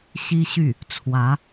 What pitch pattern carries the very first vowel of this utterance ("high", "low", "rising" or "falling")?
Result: high